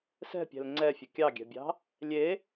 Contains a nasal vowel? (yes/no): no